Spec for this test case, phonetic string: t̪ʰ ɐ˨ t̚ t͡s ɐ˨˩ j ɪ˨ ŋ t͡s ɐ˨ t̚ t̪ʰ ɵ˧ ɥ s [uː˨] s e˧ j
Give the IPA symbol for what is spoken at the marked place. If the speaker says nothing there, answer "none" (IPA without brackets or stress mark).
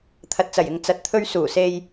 uː˨˩